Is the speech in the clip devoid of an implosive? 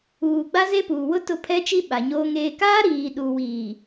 no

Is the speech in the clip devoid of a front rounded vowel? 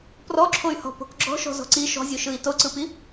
no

